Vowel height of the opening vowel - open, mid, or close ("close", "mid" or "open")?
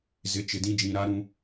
close